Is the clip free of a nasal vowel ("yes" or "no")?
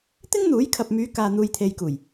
yes